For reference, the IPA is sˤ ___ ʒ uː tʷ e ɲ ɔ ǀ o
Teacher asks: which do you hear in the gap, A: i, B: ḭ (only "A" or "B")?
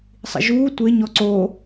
B